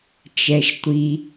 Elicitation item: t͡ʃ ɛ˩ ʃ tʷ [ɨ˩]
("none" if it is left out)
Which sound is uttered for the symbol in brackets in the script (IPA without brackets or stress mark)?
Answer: i˩